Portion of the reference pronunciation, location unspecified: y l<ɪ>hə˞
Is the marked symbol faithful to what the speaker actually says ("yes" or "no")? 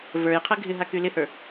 yes